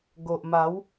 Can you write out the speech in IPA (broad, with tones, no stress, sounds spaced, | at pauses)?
ɡ o˨ ʔ m a˨˦ w